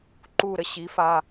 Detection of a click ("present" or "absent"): present